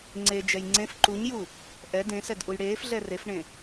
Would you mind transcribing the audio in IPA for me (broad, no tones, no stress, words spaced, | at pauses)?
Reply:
ŋ͡ǀed͡ʒɛj ŋ͡ǀẽf ǃuɲju | ʔɛ dẽsɛdʔuj ɽeːfɮɛ refɳẽ